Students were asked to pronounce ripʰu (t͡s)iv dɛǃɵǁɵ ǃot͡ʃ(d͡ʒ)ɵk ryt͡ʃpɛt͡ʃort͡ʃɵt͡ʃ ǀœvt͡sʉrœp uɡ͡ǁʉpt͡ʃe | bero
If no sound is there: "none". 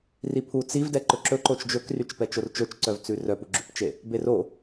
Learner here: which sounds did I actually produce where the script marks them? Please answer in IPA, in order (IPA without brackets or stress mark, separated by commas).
t͡s, d͡ʒ